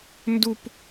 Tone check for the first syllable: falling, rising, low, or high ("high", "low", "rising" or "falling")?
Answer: high